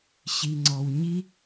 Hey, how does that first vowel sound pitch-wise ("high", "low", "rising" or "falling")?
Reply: low